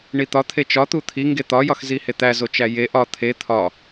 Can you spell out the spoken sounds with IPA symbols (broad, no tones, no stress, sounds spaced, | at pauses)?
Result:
ɳ i t̪ ɒ t̪ʰ e t͡ʃ ɒ t̪ u t̪ʰ i ŋ ɡ e t̪ ɒ j ɒ x z i h e t̪ æ z o t͡ʃ æ j e ʔ ɒ t̪ʰ e t̪ʰ ɒ